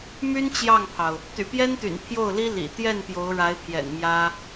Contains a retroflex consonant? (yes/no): yes